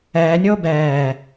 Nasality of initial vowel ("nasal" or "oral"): oral